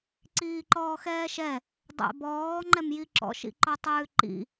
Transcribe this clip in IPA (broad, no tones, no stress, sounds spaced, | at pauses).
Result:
ǀ iː ǃ ɔː x ɛː ʃ ɛ | dˤ ɛ̰ b ɔː ŋ͡ǃ ɛ m j i ǁ ɔ̰ ʃ ḭ ǃ ɔ tˤ ʉː ǃ ḭ